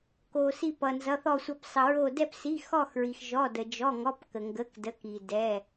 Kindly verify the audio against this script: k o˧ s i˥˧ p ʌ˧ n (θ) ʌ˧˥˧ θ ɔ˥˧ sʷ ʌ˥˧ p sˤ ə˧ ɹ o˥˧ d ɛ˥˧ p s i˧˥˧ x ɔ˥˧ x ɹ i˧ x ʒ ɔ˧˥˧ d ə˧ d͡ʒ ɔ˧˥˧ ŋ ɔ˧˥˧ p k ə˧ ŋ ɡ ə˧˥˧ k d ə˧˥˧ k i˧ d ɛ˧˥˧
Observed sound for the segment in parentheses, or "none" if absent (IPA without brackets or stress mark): z